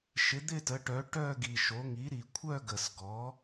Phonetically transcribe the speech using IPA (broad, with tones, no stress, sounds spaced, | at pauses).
ʃ ɪ˩˥ d̪ ɪ˥˧ t ə˩˥ ʈ œ˩˥ ʈ œ˥˧ ɡ i˨˩ ʃ o˩˥ ŋ i˩˥ ɾ i˨˩ kʷʰ œ˥˧ ɡ ə˨˩ s ɡ ɔ˩˥